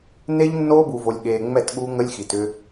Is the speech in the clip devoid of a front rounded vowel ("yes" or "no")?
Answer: no